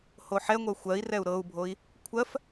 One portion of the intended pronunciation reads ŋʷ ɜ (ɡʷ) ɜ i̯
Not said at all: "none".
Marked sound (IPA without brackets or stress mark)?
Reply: xʷ